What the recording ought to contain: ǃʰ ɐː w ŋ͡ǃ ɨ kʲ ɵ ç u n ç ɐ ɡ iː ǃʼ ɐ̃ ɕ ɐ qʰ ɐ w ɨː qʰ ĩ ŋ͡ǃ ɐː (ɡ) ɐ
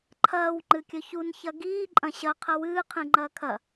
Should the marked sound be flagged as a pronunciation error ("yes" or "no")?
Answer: yes